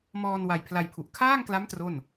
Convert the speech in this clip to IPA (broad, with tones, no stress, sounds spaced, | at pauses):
m ɔː˧ n w a˧ j pʰ l a˧ j pʰ u˨˩ ʔ kʰ aː˥˩ ŋ k l a˦˥ m t r o˥˩ n